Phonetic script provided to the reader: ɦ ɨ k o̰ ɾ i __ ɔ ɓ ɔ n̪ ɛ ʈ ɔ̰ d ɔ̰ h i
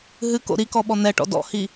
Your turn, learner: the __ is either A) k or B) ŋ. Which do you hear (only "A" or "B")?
A